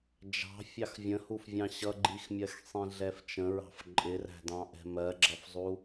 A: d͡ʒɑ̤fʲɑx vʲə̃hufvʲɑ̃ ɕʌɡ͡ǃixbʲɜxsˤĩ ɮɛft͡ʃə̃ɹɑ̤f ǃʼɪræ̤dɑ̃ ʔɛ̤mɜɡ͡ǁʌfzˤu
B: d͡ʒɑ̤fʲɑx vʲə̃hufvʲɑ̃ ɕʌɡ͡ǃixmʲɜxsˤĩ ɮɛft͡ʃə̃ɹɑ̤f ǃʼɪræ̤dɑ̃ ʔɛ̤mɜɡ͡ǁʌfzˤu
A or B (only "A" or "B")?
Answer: B